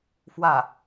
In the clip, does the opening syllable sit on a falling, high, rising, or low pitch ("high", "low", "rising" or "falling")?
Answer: falling